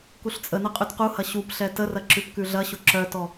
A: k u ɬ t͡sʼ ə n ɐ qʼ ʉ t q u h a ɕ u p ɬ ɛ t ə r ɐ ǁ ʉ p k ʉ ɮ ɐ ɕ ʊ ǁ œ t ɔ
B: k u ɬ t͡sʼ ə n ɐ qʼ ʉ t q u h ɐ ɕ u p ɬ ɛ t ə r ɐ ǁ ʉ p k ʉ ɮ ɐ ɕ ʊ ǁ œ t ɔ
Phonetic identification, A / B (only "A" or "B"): B